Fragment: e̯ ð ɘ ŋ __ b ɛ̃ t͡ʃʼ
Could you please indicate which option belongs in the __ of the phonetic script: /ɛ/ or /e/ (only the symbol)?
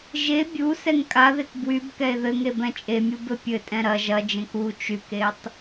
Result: e